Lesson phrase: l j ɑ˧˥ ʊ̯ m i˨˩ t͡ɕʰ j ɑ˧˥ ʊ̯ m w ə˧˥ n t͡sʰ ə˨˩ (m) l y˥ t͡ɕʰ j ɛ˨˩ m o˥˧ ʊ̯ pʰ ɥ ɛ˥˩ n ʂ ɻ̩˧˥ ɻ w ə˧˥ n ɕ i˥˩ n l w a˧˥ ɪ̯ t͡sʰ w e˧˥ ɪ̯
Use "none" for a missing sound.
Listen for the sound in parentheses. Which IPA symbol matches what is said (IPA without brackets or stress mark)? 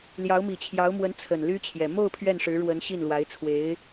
n